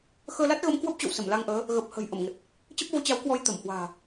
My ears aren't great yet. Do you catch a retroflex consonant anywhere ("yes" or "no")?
no